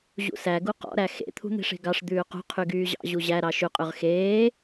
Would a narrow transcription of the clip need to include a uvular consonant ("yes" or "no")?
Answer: yes